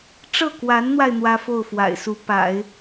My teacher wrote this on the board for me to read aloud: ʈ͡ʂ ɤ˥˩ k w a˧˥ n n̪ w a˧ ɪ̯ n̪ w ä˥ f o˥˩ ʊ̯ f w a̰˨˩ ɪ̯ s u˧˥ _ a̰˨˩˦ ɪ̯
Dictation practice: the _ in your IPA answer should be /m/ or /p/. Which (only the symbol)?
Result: p